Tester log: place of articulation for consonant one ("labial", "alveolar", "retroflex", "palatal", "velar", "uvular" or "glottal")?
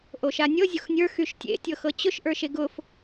glottal